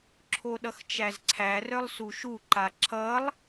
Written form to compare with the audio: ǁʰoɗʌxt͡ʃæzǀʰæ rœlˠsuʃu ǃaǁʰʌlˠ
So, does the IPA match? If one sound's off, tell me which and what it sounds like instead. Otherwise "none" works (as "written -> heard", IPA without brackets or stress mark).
none